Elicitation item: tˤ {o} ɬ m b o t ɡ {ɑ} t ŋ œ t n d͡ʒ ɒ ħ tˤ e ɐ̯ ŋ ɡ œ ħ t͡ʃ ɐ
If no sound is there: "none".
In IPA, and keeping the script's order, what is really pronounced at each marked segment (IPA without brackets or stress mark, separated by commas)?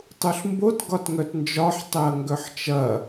u, ɒ